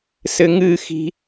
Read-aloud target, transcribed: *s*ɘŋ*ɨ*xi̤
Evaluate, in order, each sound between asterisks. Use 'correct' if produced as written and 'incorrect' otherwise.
correct, correct

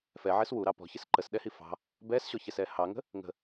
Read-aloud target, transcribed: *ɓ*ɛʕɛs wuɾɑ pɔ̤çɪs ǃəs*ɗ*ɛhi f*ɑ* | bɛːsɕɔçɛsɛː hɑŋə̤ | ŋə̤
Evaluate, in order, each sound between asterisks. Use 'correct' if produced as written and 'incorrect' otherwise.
incorrect: f, correct, incorrect: ɑ̤

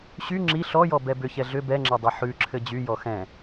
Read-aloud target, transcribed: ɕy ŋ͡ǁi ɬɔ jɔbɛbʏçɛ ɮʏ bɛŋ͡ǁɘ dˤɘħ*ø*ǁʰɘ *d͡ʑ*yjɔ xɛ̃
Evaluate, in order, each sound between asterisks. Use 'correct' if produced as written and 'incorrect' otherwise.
incorrect: ʉ, correct

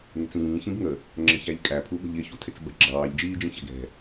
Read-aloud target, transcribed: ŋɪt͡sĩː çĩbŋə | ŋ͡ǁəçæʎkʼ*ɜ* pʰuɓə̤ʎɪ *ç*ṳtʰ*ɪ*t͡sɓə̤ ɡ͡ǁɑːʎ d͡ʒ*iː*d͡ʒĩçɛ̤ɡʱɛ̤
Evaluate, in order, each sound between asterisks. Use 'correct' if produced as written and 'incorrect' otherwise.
incorrect: æ, correct, correct, correct

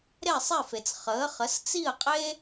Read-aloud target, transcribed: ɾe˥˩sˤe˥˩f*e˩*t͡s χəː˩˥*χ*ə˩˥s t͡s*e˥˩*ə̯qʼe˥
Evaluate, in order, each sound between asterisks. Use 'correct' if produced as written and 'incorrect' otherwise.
correct, correct, incorrect: i˥˩

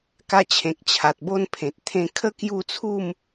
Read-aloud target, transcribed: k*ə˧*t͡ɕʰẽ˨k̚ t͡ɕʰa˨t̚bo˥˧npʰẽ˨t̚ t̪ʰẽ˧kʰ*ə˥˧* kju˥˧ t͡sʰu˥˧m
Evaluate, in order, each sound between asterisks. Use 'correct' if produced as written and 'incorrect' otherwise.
incorrect: a˧, correct

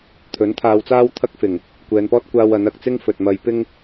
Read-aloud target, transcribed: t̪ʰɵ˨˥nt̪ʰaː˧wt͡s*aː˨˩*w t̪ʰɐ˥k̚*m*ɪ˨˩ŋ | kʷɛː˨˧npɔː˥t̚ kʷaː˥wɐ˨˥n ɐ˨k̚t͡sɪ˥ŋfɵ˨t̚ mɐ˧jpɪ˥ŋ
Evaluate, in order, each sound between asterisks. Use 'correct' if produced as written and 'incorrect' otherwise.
incorrect: aː˥, incorrect: f

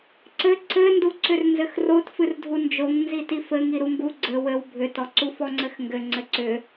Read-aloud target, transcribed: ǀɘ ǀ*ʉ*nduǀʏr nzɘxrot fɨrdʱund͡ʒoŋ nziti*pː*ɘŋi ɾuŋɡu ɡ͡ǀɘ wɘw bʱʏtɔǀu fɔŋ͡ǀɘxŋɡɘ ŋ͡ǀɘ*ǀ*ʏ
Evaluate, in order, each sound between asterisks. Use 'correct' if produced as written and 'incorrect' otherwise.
incorrect: ɘ, incorrect: f, correct

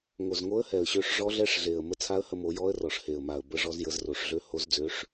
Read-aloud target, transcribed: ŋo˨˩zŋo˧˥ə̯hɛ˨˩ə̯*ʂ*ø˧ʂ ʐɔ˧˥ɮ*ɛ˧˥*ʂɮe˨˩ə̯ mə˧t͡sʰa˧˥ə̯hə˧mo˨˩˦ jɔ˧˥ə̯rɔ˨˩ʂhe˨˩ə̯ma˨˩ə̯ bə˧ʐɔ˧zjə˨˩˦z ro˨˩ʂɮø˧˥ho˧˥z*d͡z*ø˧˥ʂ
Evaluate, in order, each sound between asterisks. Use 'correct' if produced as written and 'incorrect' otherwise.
incorrect: ɕ, correct, correct

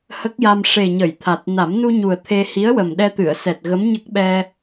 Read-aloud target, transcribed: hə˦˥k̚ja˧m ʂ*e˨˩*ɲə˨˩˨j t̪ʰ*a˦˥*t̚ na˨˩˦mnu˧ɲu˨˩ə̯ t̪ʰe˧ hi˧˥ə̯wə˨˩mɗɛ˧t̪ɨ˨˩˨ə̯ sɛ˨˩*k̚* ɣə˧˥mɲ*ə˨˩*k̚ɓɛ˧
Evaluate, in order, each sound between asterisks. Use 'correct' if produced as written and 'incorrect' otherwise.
correct, incorrect: a˨˩, incorrect: t̚, incorrect: ə˦˥

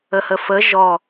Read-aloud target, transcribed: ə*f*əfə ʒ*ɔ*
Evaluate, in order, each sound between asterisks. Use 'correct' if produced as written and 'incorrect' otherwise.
incorrect: h, correct

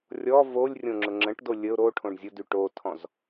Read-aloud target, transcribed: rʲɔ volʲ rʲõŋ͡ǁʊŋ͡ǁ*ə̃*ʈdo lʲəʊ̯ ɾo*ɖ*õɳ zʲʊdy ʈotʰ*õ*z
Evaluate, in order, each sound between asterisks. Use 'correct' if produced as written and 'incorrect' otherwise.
correct, incorrect: ʈʰ, incorrect: ɔ̃

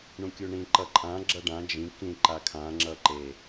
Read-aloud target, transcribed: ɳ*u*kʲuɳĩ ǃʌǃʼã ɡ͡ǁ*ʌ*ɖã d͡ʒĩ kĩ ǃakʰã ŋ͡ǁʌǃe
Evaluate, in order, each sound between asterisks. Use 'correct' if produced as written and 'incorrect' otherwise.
incorrect: ũ, correct

